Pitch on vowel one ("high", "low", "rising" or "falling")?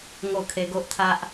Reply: falling